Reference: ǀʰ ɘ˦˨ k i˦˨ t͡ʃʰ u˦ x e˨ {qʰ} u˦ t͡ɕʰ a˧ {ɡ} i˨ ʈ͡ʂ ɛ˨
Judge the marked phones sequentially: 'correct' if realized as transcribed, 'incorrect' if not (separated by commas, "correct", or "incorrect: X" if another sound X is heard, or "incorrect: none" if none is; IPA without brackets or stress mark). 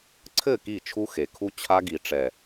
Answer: incorrect: kʰ, correct